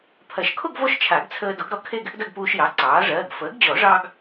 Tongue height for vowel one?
low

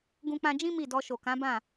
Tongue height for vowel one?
high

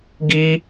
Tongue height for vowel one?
high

